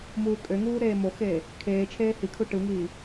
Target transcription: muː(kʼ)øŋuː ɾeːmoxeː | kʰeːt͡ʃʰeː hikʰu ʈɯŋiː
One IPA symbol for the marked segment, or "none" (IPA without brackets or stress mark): kʼ